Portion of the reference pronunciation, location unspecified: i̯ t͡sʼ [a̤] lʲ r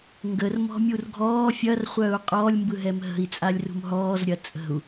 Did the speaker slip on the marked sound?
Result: yes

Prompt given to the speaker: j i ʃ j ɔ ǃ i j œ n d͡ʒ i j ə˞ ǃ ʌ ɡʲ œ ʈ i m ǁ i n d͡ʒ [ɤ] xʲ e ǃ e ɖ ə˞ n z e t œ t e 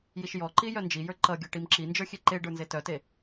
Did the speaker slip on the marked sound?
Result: yes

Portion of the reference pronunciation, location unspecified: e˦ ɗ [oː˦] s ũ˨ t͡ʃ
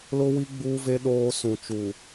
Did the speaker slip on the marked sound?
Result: no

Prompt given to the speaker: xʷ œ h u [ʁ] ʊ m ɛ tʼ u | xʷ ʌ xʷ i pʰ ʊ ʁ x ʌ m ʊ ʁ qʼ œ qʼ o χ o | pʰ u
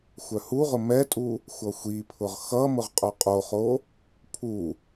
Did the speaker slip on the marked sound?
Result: no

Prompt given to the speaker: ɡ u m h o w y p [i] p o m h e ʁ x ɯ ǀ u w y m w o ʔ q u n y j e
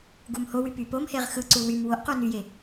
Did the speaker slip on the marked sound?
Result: yes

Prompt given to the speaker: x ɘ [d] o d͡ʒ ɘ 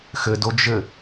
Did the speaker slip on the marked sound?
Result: no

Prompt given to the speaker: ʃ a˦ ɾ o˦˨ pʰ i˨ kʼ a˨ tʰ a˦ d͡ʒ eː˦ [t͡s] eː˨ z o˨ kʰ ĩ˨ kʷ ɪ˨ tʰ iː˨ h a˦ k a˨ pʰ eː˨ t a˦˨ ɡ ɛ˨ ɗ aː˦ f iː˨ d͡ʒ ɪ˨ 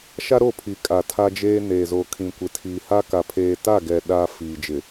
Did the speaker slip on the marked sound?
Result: yes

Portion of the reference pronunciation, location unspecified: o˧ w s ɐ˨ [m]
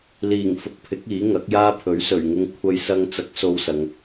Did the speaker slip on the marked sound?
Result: yes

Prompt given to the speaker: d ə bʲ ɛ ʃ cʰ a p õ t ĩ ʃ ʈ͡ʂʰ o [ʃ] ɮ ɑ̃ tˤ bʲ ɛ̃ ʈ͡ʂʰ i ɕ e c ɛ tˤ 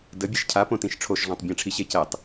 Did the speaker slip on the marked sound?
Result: no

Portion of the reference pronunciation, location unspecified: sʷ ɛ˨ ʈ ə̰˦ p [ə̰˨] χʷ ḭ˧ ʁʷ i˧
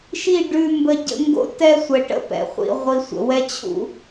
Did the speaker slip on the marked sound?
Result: yes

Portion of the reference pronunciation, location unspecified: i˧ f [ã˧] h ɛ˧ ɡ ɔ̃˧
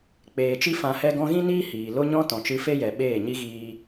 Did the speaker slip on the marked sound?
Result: yes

